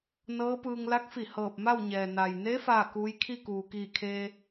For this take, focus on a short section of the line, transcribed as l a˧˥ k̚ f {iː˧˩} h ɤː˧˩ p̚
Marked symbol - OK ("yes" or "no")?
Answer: no